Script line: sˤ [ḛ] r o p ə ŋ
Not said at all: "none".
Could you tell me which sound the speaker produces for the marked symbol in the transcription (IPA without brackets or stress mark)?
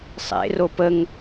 ḛ